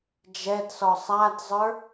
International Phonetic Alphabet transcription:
d͡ʒ ɛ d s ɔ sˤ a d zˤ ə˞

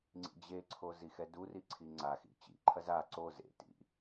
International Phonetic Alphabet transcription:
ŋ͡ǀ ḭ d͡ʑ e ǀʰ o z i x ɛ d u r i ǀʰ i ŋ͡ǀ a x ḭ t͡ɕ ḭ ǃʰ ɐ z a ǀ o z ḛ t ḭ

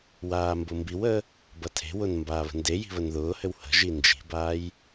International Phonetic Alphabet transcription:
w aː m b ʊ m b i w əː | b ɐ tʰ e̤ w ʊ n m b aː β ə̤ n d e j i̤ β ə n ð ʊː h ɘ w h ə̤ ʒ i n d͡ʒ i̤ b aː j

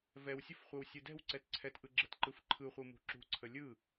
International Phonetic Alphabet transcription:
v ɛ w sʲ ə f χʷ ɛ w sʲ ɯ d ɛ̤ w ǀ ɛ t ǀʰ ɛ t ʔ ɯ ɡ͡ǁ ə t ǃ ɯ f ǃʰ ɯ χʷ ɯ m ṳ ǁ ṳ ǀʰ ə lʲ ɯ

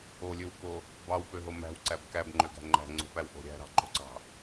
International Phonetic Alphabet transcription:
o lʲ ø w k o | b ɑ w p ø ɦ o m æ̤ w ǀ æ b k æ b ŋ͡ǃ ø ɡ æ̤ ŋ͡ǃ æ̤ ŋ͡ǀ o̤ p æ w ʔ o̤ ɾʲ æ̤ ɾ ɑ̤ ǃ o̤ ǀ ɑ̤

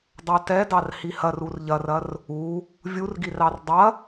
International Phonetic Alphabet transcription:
dˤ ɑ t ɛ d ɑ r h i h ɐ r u r ʎ ɐ r ɐ r | u | vʲ u r ɡ i r ɑ r dˤ ɐ

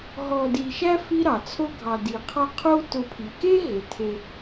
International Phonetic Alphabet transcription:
ɦ ɔ˨ d i˨ ʃ æ˦ f i˦ ɾ ɑ˩ t͡sʰ o˦ ɡʱ ɑ˨ d i˩ qʰ ɑ˦ qʰ o˥ t ʊ˨ pʰ i˩ k e˦ ɦ e˩ tʰ e˨

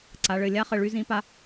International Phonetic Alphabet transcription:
ǀ a˩˧ ɭ ɘ˧˩ lʲ a˦˥ χ ɘ˧˩ ɭ y˦˥ z ĩ˦˥ p a˦˥

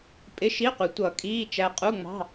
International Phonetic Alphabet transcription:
pʼ ɪ˧˥˧ ʃ i˧˥˧ qʷ ɪ˨˩˦ tʷ ʌ˨˩˦ kʼ iː˧˥˧ t͡ʃ æ˧ qʼ u˧˥˧ ŋ͡m ɑ̤˧˥˧

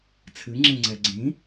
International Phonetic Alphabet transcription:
t͡sʰ ɨ ŋ͡ǁ ẽ ŋ͡ǀ ɛ ɡ͡ǀ ĩ

